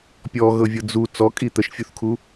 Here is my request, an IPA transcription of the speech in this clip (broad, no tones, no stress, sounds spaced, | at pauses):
pʲ ɔ ɣ ɤ vʲ ɤ d͡z u t͡s ɔ kʼ i t̪ ə ʃ fʲ u θ kʰ u